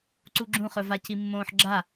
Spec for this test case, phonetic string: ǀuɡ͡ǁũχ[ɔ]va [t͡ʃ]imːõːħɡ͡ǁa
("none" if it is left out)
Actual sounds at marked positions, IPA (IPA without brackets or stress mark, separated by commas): ɵ, c